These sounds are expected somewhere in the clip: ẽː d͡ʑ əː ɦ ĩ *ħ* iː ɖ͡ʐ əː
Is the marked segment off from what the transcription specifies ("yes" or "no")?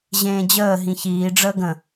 yes